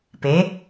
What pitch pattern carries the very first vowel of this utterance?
rising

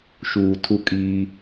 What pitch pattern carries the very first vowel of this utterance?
low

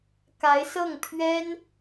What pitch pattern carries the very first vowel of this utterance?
rising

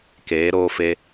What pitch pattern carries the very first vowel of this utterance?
rising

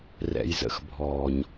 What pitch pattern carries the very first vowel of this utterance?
low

